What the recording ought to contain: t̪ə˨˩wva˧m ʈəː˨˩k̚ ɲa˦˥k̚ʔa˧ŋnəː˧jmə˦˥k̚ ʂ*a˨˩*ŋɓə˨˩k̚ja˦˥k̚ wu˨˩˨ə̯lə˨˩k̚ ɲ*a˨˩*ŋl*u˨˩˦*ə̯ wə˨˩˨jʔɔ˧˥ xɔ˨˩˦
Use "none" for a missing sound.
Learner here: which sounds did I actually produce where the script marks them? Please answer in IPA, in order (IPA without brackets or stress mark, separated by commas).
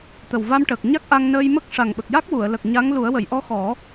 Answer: a˨˩, a˧˥, u˨˩˦